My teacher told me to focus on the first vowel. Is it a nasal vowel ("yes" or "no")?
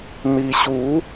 no